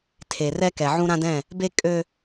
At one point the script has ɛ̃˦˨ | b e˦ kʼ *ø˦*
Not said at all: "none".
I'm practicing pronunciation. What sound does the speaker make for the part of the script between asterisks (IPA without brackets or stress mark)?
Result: ø˦